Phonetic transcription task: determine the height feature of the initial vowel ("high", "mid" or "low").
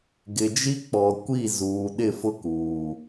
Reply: high